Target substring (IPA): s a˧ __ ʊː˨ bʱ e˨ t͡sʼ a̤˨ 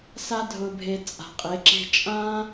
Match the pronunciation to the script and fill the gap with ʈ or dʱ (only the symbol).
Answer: dʱ